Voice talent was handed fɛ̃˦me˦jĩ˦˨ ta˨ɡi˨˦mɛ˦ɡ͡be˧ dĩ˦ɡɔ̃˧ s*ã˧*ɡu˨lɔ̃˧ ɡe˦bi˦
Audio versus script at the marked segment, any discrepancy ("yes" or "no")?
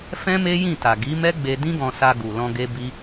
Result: yes